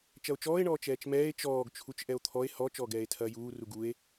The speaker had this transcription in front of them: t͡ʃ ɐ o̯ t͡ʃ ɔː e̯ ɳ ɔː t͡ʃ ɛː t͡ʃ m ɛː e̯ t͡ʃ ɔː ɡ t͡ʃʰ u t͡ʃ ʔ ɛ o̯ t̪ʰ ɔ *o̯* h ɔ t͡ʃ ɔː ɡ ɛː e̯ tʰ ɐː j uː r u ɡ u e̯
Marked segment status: incorrect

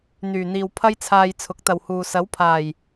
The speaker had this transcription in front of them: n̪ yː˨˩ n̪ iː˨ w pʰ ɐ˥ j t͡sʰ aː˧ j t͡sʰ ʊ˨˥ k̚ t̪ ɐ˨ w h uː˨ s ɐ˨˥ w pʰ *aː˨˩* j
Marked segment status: correct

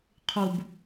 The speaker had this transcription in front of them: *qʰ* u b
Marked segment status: correct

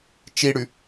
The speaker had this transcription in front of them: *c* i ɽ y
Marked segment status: incorrect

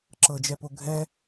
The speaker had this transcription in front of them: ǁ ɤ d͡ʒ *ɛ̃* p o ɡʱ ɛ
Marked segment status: incorrect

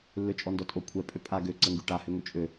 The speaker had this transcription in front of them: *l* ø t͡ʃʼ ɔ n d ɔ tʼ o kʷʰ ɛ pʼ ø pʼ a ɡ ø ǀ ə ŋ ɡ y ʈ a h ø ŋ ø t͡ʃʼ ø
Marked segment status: incorrect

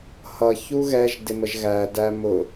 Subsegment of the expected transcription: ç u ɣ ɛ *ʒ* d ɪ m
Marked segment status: correct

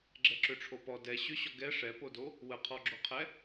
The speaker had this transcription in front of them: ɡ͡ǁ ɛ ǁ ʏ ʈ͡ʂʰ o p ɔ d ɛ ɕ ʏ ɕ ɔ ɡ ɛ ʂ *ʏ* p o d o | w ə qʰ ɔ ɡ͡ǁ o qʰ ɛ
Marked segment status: incorrect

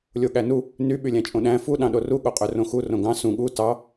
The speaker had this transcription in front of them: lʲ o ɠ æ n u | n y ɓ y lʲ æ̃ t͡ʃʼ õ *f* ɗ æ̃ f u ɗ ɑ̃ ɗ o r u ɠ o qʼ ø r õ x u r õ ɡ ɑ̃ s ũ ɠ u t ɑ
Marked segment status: incorrect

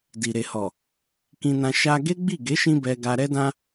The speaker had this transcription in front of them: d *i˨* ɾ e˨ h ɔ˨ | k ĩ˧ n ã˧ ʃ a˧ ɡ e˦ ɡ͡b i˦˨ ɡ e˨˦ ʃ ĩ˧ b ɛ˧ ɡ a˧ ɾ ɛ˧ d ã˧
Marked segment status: correct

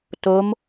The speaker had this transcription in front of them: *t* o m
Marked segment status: correct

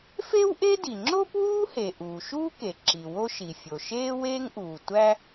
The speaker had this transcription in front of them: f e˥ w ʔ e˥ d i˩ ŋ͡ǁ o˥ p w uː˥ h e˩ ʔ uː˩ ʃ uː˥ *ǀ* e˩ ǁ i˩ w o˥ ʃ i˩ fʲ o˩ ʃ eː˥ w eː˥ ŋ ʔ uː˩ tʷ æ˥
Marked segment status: incorrect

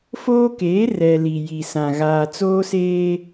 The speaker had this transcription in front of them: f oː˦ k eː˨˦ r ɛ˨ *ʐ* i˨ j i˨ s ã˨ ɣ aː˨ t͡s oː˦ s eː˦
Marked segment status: incorrect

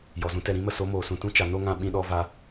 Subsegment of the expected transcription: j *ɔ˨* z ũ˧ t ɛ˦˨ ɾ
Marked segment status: correct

